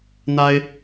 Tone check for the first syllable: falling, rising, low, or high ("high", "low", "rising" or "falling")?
high